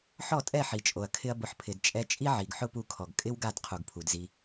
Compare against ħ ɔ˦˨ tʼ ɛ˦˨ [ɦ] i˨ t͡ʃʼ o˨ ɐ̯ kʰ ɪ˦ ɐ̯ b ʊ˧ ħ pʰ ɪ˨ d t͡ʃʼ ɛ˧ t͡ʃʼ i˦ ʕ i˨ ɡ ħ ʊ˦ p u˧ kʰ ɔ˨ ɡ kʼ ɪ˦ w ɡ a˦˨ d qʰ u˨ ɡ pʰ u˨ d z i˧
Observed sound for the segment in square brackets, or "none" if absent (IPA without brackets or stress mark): ħ